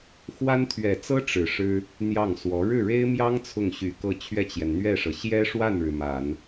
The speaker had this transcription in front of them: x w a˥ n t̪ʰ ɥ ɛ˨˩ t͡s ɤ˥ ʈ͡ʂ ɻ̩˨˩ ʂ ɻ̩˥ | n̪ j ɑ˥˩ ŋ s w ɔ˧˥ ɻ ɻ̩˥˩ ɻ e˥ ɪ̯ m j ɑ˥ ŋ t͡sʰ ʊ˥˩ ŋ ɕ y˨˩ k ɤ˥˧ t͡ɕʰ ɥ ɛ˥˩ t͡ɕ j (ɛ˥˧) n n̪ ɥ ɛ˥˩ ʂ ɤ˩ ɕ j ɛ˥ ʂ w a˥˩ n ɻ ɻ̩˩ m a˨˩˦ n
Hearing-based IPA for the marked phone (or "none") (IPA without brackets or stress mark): ɛ˩